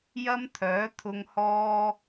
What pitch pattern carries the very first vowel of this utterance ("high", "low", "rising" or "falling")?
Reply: high